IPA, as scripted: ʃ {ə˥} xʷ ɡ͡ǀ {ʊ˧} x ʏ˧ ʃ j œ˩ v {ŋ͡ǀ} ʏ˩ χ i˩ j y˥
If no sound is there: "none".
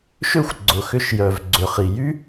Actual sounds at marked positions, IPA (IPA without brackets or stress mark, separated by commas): ø˥, ʊ˩, ɡ͡ǀ